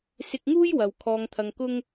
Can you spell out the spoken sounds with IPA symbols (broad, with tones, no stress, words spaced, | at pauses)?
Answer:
sɪ˧k̚ŋuː˥j wɐ˨wkʰɔː˧ŋt̪ʰɐ˧ŋkʊ˥ŋ